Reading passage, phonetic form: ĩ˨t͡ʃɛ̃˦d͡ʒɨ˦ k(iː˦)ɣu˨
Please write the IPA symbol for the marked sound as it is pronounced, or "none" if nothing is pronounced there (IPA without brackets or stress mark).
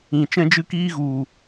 iː˦